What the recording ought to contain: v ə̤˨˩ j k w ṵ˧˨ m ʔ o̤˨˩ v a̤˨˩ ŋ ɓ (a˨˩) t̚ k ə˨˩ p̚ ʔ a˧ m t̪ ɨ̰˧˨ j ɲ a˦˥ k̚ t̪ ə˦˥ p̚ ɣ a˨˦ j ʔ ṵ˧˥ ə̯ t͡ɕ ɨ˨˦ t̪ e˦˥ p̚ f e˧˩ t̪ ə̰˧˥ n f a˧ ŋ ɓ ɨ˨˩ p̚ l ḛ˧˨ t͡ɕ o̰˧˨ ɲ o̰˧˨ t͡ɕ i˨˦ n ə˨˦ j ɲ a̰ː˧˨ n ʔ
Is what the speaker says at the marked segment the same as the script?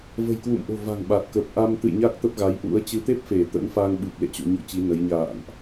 yes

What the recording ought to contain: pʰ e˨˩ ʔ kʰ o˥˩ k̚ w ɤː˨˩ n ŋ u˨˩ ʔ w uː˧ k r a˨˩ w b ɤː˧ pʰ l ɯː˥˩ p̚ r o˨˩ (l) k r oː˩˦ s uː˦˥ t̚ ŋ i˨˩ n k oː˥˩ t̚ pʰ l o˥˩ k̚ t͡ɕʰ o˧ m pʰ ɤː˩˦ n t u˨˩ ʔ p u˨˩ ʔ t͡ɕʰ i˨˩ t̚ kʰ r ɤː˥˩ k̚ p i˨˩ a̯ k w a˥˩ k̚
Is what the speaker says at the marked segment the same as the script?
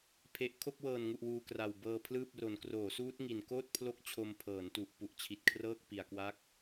no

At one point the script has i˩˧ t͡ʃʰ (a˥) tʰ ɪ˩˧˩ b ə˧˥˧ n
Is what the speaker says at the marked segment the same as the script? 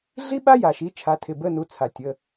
no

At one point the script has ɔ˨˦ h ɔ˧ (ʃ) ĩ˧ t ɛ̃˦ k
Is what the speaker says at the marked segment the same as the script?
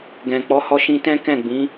yes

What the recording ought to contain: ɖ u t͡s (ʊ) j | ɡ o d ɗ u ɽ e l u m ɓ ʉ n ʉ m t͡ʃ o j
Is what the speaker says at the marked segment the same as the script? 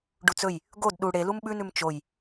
no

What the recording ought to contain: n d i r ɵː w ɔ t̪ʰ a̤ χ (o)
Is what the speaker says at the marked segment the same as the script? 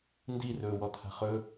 no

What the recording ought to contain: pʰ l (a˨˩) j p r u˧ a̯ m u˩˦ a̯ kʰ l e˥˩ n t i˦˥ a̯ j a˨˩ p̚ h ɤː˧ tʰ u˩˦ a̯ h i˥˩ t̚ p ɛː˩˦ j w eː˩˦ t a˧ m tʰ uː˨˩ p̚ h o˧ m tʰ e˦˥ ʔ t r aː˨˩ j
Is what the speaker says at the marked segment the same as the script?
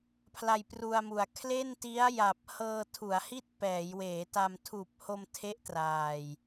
no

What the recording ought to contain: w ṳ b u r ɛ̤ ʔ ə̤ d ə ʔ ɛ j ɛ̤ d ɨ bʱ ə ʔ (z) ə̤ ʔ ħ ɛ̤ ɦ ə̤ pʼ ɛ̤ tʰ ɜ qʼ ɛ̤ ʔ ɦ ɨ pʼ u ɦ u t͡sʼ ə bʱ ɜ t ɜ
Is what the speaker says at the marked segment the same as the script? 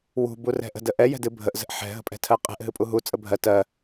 yes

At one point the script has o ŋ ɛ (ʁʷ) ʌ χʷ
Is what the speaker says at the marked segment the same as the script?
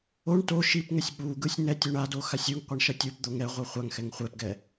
yes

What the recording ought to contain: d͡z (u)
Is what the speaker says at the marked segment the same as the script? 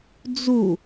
yes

